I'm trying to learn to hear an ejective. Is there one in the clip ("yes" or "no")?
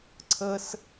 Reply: no